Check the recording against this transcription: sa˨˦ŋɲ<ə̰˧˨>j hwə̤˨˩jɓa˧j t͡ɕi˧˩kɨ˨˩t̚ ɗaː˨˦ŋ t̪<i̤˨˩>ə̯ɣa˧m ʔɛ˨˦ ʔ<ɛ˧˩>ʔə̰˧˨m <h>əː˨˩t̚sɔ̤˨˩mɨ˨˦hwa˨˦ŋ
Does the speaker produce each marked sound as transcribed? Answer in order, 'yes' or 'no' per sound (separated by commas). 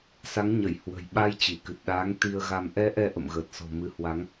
no, no, no, no